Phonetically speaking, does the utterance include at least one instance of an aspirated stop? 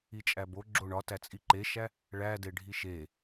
no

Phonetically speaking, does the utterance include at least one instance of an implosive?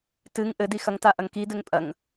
no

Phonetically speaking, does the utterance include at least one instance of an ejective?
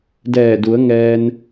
no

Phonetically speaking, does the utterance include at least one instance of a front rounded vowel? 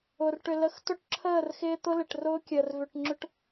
yes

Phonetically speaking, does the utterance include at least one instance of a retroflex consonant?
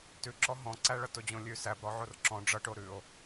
yes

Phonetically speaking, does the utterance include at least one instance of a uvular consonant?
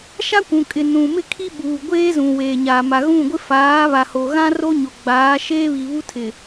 no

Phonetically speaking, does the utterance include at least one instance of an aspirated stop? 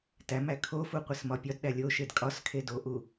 yes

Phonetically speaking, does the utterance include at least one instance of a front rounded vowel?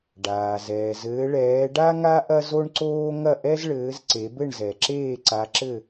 no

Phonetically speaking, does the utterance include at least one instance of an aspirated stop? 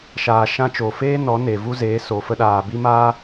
no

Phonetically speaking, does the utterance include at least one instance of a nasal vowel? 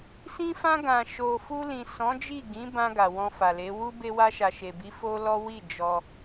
yes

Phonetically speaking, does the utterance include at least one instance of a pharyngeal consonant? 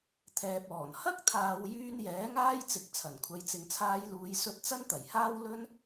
no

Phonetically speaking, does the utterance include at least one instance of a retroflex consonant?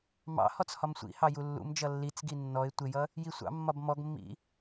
no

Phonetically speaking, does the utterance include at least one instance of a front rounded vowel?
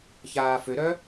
yes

